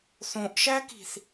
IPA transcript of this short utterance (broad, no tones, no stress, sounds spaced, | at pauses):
θ õ ʔ ʃ æ k i̤ θ